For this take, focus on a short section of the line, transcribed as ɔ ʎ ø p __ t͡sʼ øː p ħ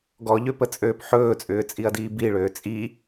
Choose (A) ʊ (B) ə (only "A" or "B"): B